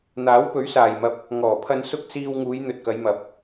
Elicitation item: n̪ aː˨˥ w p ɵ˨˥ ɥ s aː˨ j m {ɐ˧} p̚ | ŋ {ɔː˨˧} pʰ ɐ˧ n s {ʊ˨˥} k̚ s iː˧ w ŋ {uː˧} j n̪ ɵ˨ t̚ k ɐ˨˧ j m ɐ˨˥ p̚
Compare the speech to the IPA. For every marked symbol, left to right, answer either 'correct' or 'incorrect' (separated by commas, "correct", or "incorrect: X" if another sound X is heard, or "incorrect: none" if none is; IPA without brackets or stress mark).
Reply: correct, incorrect: ɔː˨˩, incorrect: ʊ˥, incorrect: uː˨˧